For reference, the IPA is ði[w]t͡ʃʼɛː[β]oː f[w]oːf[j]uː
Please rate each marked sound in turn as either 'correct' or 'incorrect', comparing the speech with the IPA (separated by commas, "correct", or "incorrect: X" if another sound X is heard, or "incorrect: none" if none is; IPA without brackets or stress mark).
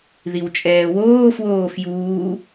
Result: correct, incorrect: w, correct, correct